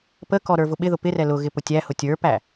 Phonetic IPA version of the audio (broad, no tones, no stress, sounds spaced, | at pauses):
p ə k ɔ ɾ ə˞ v ʊ ɓ ɪ ð ʊ p ɪ r ɛ l ʊ ɣ ɪ p ʊ tʲ æ h ʊ tʲ ə˞ p æ